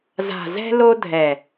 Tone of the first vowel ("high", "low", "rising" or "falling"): low